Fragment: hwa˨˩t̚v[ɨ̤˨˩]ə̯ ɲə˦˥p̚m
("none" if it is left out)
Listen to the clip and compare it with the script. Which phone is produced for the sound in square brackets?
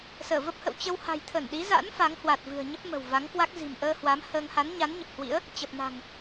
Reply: ɨ̤˨˩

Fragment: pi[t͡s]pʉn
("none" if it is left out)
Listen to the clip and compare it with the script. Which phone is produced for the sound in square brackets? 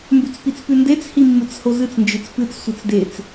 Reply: t͡s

